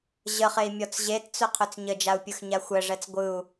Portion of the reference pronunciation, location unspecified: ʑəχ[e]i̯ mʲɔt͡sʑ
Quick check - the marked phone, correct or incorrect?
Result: correct